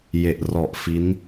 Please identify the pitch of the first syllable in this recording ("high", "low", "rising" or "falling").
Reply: low